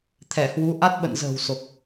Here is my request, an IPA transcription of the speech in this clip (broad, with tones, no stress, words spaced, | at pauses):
t̪ʰɛ˧˩hwu˨˦ ʔa˦˥t̚ɓə̰˧˨nzə̤ː˨˩w so˨˩k̚